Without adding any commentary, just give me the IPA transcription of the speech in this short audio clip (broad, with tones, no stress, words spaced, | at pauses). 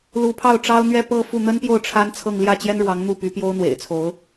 lu˧˥pʰɑ˥˩ʊ̯ʈ͡ʂɑ˥ʊ̯ n̪ɥɛ˥˧pɤ˥˧fu˥˩ n̪ə˥npjo˥˩ʊ̯ ʈ͡ʂʰa˥n t͡sʰɤ˥˧ŋ ljä˥˩t͡ɕjɛ˥nɻwɑ˧˥ŋ n̪u˥˩py˧˥pjo˥ʊ̯ n̪wḛ˨˩ɪ̯t͡sʰo˧˥ʊ̯